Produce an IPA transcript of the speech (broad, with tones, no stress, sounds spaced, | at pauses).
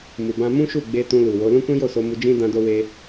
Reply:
m u˨ b ã˧ m ũ˦ ʃ u˦˨ ɡ͡b e˧ t ũ˧ l u˨ w o˨˦ l ũ˦ k ũ˦ j o˦˨ s o˧ m u˧ d͡ʒ ĩ˦ d ã˦ d o˦ w e˦